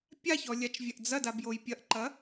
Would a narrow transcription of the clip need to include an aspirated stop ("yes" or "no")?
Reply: no